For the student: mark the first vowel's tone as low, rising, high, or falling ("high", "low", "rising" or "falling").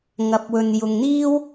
rising